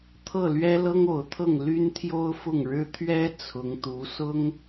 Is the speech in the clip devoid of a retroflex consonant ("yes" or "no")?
no